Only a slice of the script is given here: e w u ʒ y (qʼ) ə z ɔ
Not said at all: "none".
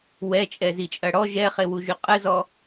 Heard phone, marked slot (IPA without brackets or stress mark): qʼ